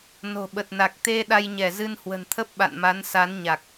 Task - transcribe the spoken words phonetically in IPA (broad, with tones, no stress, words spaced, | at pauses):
no̤˨˩ɓə˨˩t̚na˨˩k̚ t̪e˧ ɗa˧jɲɛ˧˩zɨ˧nhwə̤˨˩n t̪ʰə˦˥p̚ɓa̰˧˨nma˨˦nsa˨˦n ɲa˨˩k̚